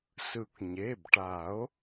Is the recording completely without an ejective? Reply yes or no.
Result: yes